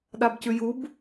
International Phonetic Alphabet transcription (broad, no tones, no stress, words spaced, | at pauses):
ɗabcʉjub